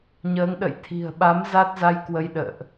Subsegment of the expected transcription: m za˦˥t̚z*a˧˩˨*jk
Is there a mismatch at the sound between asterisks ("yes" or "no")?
yes